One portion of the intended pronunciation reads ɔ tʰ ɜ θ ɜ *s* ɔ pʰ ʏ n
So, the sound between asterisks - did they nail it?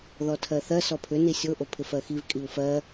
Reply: yes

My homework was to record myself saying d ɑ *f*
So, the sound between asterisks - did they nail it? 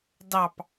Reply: no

